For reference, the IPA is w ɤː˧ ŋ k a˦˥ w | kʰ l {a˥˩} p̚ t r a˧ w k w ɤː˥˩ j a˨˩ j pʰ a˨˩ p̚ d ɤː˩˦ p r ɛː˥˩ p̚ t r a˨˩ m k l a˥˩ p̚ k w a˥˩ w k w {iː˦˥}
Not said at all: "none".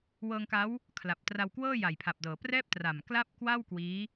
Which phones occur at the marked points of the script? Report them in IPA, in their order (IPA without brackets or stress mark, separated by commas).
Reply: a˨˩, iː˦˥